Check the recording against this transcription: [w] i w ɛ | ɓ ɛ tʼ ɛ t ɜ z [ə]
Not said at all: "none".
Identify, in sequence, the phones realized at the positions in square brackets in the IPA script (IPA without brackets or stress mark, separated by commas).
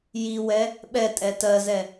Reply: j, ɛ